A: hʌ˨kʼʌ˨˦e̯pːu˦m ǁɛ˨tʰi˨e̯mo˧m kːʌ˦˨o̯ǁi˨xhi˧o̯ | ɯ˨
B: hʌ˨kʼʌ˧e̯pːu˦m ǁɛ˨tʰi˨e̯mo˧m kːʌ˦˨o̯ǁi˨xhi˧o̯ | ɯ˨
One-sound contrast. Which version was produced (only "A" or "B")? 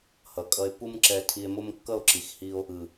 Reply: B